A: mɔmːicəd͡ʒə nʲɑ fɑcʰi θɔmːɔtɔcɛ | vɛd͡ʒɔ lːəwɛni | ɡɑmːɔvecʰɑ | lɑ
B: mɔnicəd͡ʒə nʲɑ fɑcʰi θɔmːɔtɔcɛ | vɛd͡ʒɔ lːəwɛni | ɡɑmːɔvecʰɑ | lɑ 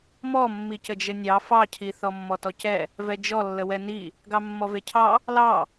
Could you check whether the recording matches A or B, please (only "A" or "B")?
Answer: A